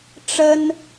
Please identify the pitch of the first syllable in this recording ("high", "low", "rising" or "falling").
high